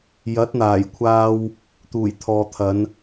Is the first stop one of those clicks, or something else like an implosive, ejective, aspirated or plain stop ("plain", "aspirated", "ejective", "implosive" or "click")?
plain